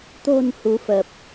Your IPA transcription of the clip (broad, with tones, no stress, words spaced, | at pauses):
t̪o̤˨˩n hu˨˦fə˨˩p̚